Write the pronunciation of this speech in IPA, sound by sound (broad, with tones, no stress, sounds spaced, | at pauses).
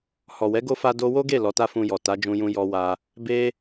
h ɔ˨ w ɛ˨˦ ɡ o˦ f a˦ d o˧ w o˦ ɡ e˦˨ l ɔ˨˦ t a˦ f ũ˧ j ɔ˨ t a˨˦ d͡ʒ ũ˧ j ũ˧ j ɔ˧ w a˧ | b e˦